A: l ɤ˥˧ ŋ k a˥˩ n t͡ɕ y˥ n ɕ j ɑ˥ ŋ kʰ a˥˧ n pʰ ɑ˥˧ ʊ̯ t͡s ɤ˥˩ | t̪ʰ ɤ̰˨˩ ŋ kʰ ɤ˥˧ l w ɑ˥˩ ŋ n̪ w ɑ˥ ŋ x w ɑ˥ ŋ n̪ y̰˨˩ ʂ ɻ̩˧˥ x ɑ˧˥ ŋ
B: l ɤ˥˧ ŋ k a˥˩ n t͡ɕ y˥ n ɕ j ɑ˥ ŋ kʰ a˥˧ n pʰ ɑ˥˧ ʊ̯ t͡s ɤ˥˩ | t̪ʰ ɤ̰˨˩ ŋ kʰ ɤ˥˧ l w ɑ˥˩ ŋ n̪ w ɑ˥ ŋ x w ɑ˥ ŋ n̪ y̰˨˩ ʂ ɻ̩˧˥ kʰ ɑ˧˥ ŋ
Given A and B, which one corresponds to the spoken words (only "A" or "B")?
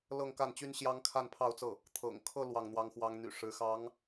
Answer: A